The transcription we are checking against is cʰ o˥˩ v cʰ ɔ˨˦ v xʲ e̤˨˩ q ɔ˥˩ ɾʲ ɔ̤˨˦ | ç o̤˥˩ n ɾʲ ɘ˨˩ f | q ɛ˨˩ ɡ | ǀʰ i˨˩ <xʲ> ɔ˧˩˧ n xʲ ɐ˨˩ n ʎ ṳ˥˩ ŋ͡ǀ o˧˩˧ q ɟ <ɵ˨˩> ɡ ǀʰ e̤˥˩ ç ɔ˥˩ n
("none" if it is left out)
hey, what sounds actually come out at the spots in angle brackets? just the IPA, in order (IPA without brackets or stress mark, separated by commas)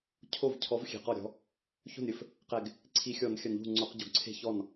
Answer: xʲ, o˨˩